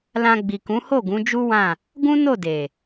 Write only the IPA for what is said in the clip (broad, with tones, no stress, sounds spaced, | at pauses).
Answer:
l ã˧ ɡ͡b i˨ k ũ˨˦ h o˦˨ ɡ ũ˨˦ d͡ʒ u˦ w ã˦˨ | ɡ ũ˦ n o˦˨ d e˨